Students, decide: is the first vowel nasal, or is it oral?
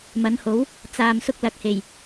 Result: oral